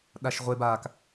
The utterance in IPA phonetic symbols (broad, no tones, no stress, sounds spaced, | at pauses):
ɗ a ʃ ʁʷ e b a k